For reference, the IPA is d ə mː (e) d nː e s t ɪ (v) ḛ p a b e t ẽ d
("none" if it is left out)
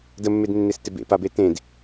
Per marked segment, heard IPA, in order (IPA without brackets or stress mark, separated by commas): e, b